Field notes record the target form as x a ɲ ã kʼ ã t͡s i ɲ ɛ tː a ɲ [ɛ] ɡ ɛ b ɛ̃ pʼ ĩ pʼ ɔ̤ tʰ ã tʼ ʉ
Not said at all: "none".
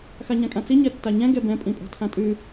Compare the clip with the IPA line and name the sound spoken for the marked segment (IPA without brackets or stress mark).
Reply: ɛ̃